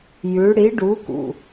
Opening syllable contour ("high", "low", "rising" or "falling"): rising